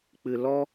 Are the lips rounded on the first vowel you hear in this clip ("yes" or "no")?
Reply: no